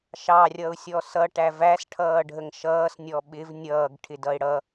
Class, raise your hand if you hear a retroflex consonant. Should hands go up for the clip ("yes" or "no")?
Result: yes